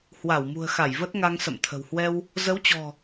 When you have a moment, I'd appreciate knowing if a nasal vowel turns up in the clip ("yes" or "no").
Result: no